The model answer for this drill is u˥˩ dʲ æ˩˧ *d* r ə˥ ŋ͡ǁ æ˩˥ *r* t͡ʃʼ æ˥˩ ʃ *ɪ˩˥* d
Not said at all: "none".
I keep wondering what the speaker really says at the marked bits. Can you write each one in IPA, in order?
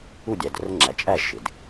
d, none, ɪ˩˧

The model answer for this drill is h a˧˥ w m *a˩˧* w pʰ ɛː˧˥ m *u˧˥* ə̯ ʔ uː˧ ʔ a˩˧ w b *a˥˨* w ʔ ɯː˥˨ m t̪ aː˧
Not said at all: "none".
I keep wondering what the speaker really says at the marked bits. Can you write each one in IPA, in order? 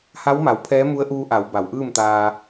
a˩˧, u˧˥, a˩˧

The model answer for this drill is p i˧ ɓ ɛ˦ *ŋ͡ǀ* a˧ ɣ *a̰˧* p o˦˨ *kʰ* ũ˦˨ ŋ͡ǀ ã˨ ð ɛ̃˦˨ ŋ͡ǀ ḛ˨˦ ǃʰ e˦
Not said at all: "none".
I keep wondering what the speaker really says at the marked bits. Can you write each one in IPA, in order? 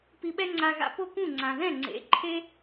ŋ͡ǀ, a̰˧, k

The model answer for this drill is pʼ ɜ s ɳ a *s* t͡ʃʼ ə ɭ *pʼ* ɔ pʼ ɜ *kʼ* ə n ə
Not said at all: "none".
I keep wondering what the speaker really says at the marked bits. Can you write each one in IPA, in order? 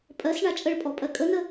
none, pʼ, kʼ

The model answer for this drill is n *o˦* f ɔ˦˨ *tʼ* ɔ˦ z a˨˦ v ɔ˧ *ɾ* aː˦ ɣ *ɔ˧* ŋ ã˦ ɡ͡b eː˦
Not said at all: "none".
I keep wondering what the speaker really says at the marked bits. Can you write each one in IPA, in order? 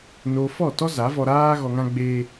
o˧, t, ɾ, ɔ˧

